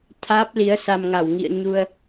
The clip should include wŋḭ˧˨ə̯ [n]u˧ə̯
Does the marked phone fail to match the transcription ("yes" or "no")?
yes